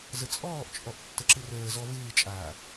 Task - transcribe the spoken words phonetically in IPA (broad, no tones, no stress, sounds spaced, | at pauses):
z ə t͡sʼ ɔː ʔ t͡ʃʼ ɔ ʔ tː ə ǁ ɨ r əː z ɔ v ɨː t͡ʃʼ aː